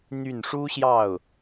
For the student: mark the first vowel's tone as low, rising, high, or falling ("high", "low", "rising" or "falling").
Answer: falling